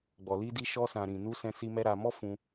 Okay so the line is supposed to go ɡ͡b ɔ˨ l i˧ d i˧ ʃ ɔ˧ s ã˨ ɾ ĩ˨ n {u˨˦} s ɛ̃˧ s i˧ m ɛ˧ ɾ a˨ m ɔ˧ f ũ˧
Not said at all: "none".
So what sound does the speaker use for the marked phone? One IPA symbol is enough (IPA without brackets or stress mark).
u˧